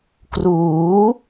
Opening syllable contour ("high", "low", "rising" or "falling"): rising